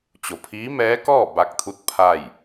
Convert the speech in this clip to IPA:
t͡ɕ o˩ pʰ iː˧˥ m ɛː˧˥ k ɔː˥˨ b a˧ k̚ t̪ʰ u˧˥ t̚ pʰ a˥˨ j

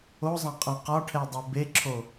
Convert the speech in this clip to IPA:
o zˤ ã qʼ ã q ɒ ʈʰ ɛ dˤ o b e ǁʰ o

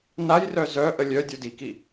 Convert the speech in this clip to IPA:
n a j r œ z œ ʔ ə lʲ œ dʲ o d i k i

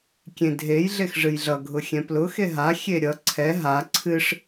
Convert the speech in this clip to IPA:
kʲ ẽ dʱ e j ɮ e x ʐ ɨ j ɮ ʌ ɡʱ ʊ xʲ ɛ̃ p l ʊ x e ɦ a xʲ e ɾʲ ʌ ǀʰ ɛ ɦ a ǀʰ ɨ ʂ

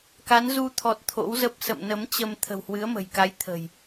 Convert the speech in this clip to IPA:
k a˨˦ n z u˧ t̪ʰ ɔ˨˩ t̚ t̪ʰ o̰˧˥ w z ə˦˥ p̚ s ə̰˧˨ m n ə˨˦ m t͡ɕ ə˧ m t̪ʰ ə̤˨˩ w h w ɨ˨˦ ə̯ m ə̤˨˩ j k a˨˦ j t̪ʰ ə̤˨˩ j

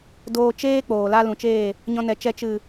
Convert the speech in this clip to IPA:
d oː˧ t͡ʃ eː˦ k͡p oː˨ l a˦ l ũ˨ t͡ʃ eː˦˨ | ɲ ɔ̃˧ n ɛ˨ t͡ʃ ɛ˧ t͡ʃ ɨ˨

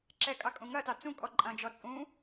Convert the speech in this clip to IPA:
ǁ ɛ kʼ ɑ kʼ ũ ŋ ɐ t ɑ t͡s ũ kʼ ɔ ǃʼ ɐ̃ d͡ʒ ɔ t͡sʼ ũ

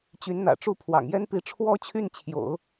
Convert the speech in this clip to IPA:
t͡ɕ y˧˥ n n̪ ä̰˨˩ ʈ͡ʂ u˥˩ pʰ w ɑ̰˨˩ ŋ j ɛ˥ n p i˧˥ ʈ͡ʂʰ w ɔ˥ t͡ɕʰ y˥˩ n t͡ɕʰ j o̰˨˩˦ ʊ̯

